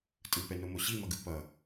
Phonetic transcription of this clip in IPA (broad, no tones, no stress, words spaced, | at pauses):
tʼɯpɛnomo ɕimʌɡɯ pʌ